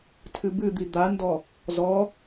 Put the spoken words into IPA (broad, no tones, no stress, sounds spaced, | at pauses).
tʰ ɨ b ɨ d̪ i d̪ a n d ɔ | z ɔ